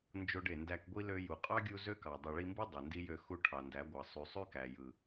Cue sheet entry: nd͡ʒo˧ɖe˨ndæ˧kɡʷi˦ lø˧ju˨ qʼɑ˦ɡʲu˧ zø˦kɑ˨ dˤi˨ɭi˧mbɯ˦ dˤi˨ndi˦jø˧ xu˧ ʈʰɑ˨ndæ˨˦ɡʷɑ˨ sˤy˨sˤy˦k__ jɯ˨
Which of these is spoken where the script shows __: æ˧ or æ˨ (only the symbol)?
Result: æ˨